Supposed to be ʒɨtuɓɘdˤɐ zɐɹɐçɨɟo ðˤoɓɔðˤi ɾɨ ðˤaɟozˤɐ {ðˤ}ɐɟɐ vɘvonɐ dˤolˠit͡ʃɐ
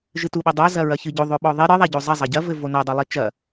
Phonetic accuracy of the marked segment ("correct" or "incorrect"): incorrect